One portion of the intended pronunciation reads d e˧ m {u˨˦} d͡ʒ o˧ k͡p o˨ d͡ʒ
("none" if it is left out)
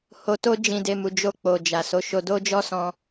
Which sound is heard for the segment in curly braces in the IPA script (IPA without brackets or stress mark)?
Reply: u˨